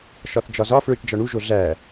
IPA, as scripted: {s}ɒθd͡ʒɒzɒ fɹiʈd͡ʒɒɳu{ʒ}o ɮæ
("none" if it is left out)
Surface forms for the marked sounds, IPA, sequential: ʃ, ʒ

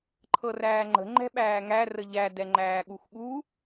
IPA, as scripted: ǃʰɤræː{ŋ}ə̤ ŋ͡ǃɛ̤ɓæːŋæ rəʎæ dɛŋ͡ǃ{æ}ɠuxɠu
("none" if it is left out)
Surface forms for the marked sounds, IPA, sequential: ŋ͡ǃ, æː

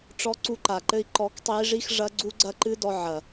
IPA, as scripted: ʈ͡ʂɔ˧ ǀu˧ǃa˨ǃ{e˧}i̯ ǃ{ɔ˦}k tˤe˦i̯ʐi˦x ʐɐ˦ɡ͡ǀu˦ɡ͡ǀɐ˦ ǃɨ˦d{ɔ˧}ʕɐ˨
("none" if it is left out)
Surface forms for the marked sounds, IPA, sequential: ɘ˧, ɔ˧, ɔ˧

